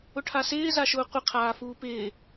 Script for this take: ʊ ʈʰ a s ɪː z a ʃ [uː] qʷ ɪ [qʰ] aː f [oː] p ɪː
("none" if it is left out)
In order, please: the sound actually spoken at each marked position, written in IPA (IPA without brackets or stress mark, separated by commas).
ʊː, qʰ, uː